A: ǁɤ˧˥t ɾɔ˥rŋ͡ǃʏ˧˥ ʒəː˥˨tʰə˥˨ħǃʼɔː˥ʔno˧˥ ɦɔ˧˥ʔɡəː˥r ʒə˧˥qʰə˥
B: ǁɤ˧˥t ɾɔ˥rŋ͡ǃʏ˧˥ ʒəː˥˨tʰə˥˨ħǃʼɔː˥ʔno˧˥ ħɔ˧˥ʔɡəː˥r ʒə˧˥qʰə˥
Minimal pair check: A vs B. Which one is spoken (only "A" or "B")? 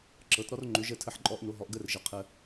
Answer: A